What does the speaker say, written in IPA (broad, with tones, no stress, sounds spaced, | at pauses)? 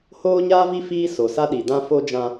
h oː˦ ɲ aː˦ v i˦ f iː˦ s o˨ s a˦ ɗ i˨ d ã˦ f o˦ d͡ʒ ã˦